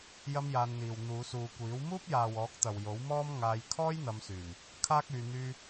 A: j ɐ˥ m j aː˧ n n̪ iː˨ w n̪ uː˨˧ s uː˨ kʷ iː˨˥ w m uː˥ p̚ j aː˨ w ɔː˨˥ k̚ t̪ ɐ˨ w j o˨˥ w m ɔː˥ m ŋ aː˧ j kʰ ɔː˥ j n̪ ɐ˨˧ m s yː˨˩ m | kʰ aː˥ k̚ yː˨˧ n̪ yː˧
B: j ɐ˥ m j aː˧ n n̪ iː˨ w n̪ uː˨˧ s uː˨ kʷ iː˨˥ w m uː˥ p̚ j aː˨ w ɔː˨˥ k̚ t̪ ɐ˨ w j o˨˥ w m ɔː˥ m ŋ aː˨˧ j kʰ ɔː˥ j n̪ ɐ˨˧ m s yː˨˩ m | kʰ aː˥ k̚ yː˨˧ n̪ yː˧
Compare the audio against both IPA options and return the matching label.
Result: A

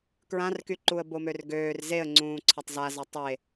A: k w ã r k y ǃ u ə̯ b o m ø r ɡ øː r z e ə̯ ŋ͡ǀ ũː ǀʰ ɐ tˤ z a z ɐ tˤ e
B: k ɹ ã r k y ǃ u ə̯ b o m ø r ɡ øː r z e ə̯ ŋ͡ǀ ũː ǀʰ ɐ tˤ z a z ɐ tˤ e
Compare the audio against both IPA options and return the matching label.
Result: B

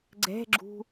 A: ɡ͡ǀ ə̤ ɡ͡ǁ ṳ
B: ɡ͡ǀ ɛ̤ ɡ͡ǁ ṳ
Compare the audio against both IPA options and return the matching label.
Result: B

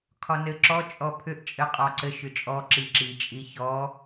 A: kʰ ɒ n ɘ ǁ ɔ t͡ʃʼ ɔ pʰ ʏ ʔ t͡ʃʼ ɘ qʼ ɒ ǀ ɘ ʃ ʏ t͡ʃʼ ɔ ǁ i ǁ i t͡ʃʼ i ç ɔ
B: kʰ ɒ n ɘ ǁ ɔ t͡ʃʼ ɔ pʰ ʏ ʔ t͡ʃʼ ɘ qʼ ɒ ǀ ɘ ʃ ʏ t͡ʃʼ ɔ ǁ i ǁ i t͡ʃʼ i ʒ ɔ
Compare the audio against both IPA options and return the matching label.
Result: A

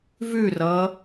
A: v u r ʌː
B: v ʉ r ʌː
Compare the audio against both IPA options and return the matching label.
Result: B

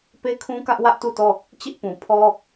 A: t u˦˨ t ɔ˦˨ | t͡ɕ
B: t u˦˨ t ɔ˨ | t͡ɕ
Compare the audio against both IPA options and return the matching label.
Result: A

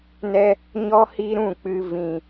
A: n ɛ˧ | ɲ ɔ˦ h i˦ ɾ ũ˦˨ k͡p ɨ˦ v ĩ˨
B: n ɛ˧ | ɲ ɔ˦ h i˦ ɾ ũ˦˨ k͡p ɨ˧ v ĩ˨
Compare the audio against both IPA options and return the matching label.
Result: B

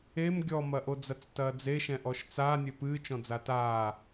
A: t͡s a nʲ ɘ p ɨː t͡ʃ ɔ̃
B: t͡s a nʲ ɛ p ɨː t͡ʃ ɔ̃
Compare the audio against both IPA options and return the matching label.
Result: A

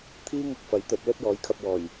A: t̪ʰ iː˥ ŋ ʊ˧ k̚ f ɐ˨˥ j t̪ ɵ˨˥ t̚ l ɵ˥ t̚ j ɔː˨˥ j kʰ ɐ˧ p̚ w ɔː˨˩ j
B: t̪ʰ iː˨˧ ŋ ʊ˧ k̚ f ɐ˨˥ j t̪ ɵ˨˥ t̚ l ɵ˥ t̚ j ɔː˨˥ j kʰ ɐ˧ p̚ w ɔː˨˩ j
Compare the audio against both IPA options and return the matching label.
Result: A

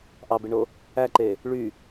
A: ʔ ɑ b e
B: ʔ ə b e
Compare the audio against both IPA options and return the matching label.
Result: A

